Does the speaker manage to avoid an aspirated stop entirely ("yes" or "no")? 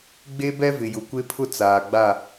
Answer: no